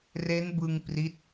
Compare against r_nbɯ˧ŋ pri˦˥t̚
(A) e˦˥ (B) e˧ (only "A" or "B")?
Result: A